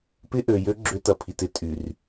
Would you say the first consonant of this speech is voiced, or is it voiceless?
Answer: voiceless